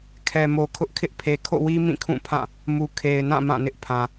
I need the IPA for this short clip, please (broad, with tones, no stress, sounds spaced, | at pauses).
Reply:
kʰ ɛ˨ m o˨ kʰ ʊ˦ ʔ kʰ ɪ˦ ʔ pʰ e˨ kʰ o̰˦˨ w i˦ m ĩ˦˨ kʰ ũ˦˨ pʰ ã˦˨ | m u˨ kʰ e˨ ɪ̯ n ã˦˨ m ã˦˨ n ɪ˦ ʔ pʰ ã˨